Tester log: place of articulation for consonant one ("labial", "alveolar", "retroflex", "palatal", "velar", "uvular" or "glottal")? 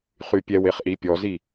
uvular